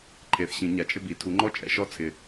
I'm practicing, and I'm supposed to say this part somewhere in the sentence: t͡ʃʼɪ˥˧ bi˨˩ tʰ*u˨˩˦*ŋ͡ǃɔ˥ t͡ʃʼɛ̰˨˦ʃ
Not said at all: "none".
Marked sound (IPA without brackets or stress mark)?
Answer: u˨˦